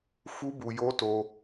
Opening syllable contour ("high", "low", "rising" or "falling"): high